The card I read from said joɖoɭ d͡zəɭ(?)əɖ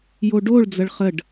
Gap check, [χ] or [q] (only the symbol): χ